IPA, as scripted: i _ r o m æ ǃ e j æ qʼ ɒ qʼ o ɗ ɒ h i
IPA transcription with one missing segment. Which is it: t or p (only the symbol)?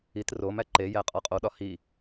t